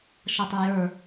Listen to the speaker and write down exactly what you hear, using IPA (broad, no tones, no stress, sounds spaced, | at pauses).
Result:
ʃ ʌ tˤ ə˞ j ə˞